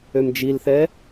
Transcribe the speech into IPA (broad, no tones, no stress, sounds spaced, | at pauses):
ø m d͡ʒ i l θ ɛ